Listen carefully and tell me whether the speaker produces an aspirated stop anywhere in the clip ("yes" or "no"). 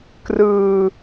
no